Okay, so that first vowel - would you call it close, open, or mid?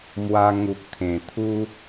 open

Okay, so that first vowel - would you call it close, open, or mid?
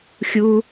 close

